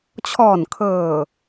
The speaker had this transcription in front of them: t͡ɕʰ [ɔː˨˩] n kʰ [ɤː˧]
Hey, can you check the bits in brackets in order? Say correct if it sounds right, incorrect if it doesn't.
correct, incorrect

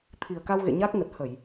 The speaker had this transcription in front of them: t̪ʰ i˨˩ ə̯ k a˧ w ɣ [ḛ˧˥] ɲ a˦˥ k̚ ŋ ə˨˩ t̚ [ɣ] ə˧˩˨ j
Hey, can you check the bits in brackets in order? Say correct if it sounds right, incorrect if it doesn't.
incorrect, incorrect

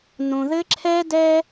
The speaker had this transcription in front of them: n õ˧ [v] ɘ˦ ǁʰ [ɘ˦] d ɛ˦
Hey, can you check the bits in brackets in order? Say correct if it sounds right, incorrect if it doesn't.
incorrect, incorrect

